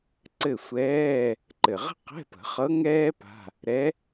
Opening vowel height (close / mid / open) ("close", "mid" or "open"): mid